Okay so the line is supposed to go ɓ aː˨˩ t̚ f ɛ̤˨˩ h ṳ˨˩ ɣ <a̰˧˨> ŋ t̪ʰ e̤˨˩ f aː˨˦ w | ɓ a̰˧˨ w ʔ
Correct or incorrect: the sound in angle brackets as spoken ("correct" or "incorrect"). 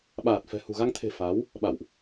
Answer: incorrect